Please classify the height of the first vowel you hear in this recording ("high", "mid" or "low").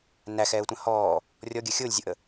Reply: low